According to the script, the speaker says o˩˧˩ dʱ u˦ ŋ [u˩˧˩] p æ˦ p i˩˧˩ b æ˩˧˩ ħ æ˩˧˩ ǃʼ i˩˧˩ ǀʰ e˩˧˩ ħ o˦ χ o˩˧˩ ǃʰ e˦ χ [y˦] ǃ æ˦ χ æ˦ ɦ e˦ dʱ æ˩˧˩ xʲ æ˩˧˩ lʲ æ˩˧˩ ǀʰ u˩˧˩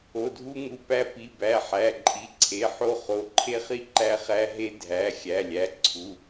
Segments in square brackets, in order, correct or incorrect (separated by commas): correct, incorrect